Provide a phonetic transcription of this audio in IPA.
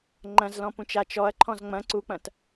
ŋ͡ǃ ɐ̃ z l ɔ̃ p ũ t͡ʃ a t͡ʃ ɔ ɐ̯ ǃʰ ɔ̃ z ŋ͡m ɐ̃ ǀ u k͡p ɐ̃ t

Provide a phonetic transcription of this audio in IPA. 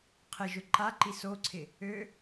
qʰ ɪ ʒ ʊ ǃ a ǃ i s o ǀʰ ɪ | ø

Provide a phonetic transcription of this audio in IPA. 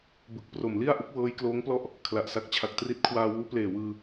b ɯ˨˩ k̚ p r o˨˩ m l i˥˩ a̯ ʔ u˦˥ k̚ w ɤː˦˥ j k l oː˦˥ ŋ p l ɔ˥˩ ʔ | kʰ l a˨˩ ʔ s a˦˥ k̚ t͡ɕʰ a˨˩ k̚ t r i˦˥ t̚ kʰ w aː˧ w uː˦˥ p l eː˨˩ w ɯː˧

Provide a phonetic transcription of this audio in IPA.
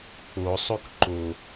k͡p o sˤ u k ǃ o

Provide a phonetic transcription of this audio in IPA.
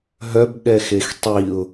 ɦ œ b ɠ ɛ x e x tˤ i ʊ̯

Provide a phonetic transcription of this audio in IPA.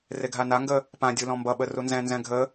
r e ɡʱ a n a ŋ ɡ ə | p ã dʲ u l ɔ̃ m b ʌ ɓ ə r u n z ɛ̃ n z ɛ̃ ɡʱ ə

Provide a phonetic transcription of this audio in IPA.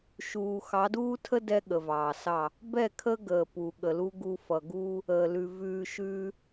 ʃ uː˨ x ɑ˨˦ d uː˦ tʰ ə˦ d ɛ˦ ɠ ə˨ v ɑː˨ s ɑ˦˨ | b ɛ˦˨ kʰ ə˦ ɡ əː˨ p u˨ ɠ ə˨ l u˦ ɡ u˦ f ʌ˨ ɡ uː˦ | əː˨ l ʉ˨ v ʉː˨ ʃ ʉː˦

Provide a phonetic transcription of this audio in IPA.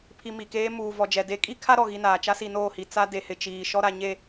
pʰ i˨ m i˨ k eː˦ m uː˨ v ɔ˨ d͡ʒ ɛ˨ d e˨˦ kʼ i˦ kʰ a˦ ɾ ɔ˨ ɣ i˦ n aː˨ t͡ʃ a˦ s i˨ n oː˦˨ h i˨ t͡s a˦ d e˨ h ɪ˨ t͡ʃ iː˨ ʃ ɔ˦ ɾ a˨ ɲ e˦˨

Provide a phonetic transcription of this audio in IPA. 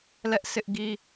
l ɛ˦ ʔ sʰ ɪ˦ ʔ ɡ i˦

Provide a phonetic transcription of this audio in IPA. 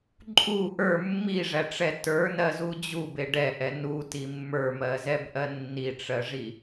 ǃʼ u ʔ ə˞ mː i ʐ æ ʈ͡ʂ ɛ t ə˞ n ɜ z u d͡ʑ u b e ɖ ɛ ʔ ɛ n u t i mː ə˞ m ɜ z ɛ b ʔ ɜ nː i ʈ͡ʂ ɜ ʐ i

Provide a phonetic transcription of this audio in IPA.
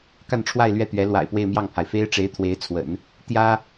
k a˥˧ n ʈ͡ʂʰ w a˥˧ ɪ̯ l ɥ ɛ˥˩ t̪ ɥ ɛ˧˥ l w a̰˨˩ ɪ̯ p w e˥˧ ɪ̯ m j ɑ˥˩ ŋ pʰ a˩ ɪ̯ f e˥ ɪ̯ ʈ͡ʂ e˧˥ ɪ̯ t̪ʰ w e˧˥ ɪ̯ t͡sʰ w ə̰˨˩˦ n | t̪ j ä˥

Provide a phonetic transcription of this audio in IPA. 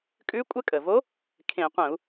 kʼ ʉ˧˥ kʷʼ ə˧˥ kʼ ə˩ v o˧˥ | kʰ ẽ˧˩˧ qʷ ə̃˧˩˧ u̯

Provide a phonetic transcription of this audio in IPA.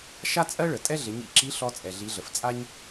ʃ a˥ t͡sʼ ɜ˥ ɭ ə˩ tʼ ɛ˥ ɮ ɪ˩˧ ɲ ḭ˧ ǁ i˧˥ ɬ ɔ˧ t͡sʼ ɛ˩ ɮ i˩˧ ɮ ə˩ f t͡sʼ a˥ ɲ

